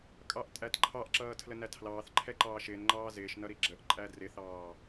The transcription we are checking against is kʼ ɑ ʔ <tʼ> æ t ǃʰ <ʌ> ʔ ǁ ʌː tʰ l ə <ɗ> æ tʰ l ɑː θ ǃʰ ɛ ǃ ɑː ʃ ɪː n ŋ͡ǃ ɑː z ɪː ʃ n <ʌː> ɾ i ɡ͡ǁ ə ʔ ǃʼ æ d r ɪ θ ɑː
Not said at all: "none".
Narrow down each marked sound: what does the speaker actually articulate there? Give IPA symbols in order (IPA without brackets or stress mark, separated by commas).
tʼ, ɑ, n, ʌ